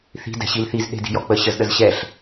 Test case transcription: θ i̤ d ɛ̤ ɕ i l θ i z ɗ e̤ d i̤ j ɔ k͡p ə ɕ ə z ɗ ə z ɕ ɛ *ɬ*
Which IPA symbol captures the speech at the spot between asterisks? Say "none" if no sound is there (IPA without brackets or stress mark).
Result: ɬ